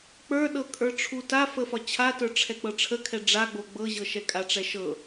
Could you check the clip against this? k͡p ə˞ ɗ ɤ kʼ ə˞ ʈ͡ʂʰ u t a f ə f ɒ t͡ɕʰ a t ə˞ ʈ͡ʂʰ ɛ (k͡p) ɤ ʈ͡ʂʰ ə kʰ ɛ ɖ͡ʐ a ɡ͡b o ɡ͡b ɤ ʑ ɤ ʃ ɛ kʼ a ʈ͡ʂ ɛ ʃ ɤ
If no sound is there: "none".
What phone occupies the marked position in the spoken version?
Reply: k͡p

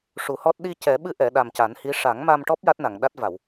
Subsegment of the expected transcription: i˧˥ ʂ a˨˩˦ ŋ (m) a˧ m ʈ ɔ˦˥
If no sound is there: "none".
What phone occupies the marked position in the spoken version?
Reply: m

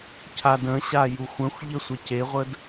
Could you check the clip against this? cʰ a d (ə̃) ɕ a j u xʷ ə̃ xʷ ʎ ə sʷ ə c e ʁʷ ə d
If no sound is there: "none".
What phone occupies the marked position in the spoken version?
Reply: ə̃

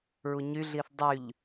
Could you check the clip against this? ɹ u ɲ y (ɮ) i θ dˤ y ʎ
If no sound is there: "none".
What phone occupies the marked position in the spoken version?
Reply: ɮ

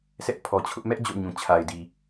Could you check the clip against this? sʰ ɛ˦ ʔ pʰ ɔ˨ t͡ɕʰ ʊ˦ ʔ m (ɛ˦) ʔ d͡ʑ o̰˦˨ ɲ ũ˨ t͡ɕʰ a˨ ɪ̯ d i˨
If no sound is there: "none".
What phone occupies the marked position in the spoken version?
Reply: ɛ˦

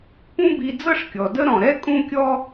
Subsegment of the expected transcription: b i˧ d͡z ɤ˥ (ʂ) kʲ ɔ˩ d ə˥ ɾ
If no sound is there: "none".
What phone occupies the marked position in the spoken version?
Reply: ʂ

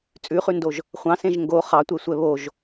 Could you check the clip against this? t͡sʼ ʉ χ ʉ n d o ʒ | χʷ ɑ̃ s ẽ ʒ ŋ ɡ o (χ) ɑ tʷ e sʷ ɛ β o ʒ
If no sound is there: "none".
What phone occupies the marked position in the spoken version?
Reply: χ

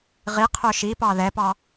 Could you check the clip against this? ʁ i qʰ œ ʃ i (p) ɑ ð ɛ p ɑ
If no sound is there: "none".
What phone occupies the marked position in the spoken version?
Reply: p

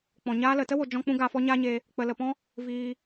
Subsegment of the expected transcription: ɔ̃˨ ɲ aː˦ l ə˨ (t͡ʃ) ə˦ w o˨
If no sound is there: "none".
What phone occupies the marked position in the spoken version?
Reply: t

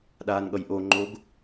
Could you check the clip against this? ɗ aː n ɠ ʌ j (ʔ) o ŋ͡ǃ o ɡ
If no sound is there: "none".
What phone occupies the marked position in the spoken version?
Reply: ʔ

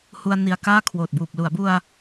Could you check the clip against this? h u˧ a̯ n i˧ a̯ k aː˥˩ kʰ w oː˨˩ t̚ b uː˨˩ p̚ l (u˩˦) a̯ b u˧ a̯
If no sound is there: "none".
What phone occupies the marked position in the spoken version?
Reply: u˩˦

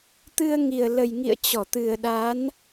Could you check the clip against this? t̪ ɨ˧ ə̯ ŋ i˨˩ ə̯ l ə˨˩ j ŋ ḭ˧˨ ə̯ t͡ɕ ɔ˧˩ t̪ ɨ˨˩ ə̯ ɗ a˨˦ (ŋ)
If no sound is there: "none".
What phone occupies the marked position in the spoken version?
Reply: n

